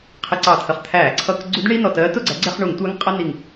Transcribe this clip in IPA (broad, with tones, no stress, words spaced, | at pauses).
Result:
qʰɪ˧˩˧ ǀɑ˧˩˧t̪ʰə˩χ t̪ʰæː˧˩˧ǀʰʌ˧˩˧k ɡ͡ǀu˧˥dɳi˧˥˧nɔ˧˩tɜː˧˥ tʊ˥˨ɡ͡ǀæ˧˥ ɡ͡ǀɛ˧˥˧χɳu˧˩˧ŋtʷæ˧˥ŋ qʼʌ˧˥˧ni˧˩ŋ